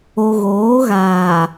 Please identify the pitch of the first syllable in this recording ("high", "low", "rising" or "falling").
low